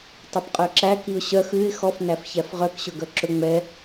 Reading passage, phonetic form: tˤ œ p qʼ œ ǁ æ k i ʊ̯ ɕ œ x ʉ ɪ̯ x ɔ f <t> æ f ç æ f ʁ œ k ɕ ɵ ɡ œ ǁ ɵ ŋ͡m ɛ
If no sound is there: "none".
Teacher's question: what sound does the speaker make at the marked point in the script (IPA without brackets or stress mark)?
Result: n